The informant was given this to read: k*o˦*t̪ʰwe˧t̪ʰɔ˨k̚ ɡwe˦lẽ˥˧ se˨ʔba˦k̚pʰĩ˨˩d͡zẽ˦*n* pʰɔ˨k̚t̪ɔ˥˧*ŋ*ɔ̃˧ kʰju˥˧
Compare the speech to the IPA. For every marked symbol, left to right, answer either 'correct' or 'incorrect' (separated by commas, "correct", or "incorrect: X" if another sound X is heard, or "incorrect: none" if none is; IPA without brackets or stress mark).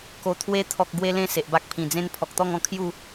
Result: incorrect: o˨˩, correct, correct